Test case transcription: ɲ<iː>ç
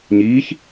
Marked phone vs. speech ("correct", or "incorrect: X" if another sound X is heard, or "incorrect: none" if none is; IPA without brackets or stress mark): correct